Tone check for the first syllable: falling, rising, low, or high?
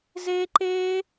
high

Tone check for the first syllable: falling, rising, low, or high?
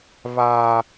low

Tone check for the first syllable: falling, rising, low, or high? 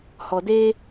low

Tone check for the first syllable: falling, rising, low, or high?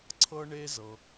high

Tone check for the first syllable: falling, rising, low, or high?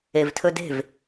low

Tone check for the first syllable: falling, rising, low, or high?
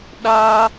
high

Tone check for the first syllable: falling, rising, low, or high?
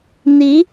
rising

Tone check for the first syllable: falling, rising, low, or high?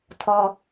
high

